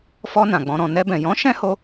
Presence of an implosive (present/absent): absent